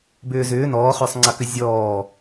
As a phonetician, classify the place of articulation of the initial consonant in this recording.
labial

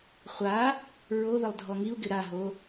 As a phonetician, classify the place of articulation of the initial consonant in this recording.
uvular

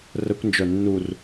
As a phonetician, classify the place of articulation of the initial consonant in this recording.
alveolar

